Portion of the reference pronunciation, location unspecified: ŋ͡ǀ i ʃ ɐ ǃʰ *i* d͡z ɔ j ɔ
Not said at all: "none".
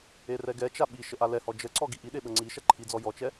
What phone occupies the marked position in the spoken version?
i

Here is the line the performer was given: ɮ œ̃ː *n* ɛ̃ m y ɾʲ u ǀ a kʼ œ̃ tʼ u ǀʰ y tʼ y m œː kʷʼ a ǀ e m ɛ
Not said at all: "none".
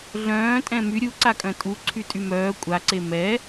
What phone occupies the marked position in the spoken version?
tʼ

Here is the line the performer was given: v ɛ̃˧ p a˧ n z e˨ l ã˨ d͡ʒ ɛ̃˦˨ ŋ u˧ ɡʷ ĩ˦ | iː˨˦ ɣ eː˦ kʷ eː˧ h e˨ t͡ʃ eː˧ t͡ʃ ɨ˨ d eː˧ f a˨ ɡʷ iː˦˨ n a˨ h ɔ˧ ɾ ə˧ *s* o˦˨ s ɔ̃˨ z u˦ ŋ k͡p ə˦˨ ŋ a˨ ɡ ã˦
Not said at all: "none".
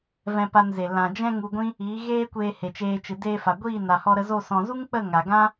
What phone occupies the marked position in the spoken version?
z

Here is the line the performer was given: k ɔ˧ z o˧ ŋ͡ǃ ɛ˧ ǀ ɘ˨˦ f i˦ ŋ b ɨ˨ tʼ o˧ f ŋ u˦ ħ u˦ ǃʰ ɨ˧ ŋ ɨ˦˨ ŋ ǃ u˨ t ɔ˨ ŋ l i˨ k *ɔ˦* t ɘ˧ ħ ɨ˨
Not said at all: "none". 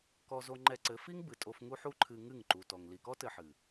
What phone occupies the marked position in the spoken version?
ɔ˦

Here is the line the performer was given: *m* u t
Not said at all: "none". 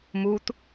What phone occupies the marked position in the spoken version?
m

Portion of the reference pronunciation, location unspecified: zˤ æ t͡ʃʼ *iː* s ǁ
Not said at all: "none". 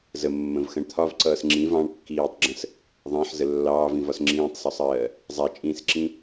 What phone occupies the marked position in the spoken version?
ĩː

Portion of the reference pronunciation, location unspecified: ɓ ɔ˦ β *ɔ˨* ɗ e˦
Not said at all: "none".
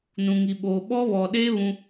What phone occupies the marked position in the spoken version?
ɔ˨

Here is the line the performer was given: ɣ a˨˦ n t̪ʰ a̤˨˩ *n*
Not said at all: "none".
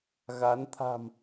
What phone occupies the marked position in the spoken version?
m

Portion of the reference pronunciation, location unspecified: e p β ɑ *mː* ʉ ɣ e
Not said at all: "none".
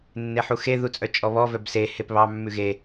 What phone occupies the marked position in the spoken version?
mː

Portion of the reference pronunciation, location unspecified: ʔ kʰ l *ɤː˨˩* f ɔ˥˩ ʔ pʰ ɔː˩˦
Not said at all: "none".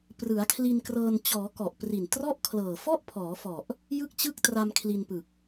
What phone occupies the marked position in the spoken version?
ɤː˨˩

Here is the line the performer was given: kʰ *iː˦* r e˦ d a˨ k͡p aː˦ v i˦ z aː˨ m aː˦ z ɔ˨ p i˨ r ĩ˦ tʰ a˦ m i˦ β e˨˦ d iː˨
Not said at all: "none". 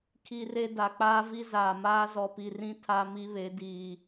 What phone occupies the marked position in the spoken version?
i˦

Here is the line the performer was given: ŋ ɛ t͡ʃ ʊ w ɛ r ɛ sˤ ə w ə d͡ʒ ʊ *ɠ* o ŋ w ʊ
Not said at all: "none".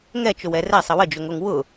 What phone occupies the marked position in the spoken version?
ŋ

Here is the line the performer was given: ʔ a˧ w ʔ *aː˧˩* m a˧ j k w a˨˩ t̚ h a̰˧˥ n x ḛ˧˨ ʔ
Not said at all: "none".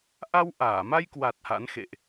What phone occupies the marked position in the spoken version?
aː˧˩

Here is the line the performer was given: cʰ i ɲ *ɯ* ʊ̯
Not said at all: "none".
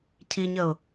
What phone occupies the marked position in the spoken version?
ə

